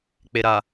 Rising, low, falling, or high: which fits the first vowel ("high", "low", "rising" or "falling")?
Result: low